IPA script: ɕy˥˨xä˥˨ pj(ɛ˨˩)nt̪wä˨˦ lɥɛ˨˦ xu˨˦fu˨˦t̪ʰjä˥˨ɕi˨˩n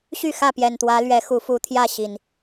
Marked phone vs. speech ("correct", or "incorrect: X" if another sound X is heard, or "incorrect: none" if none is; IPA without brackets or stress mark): correct